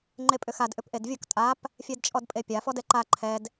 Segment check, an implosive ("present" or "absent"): absent